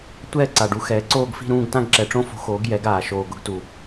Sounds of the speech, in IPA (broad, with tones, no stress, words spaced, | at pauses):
tʷɛː˦˨ ǀa˨˩ɖu˩˥xɛː˩˥ ǀoː˦˨ɡfi̤˦˨ɾũː˦˨ɡ tã˦˨ɡǁɛ˨˩ʈ͡ʂõ˦˨fo̤˩˥ xoː˩˥ɡjɛ˩˥ɡaː˨˩ ʃoː˨˩ɡʊ˩˥ɡtu˨˩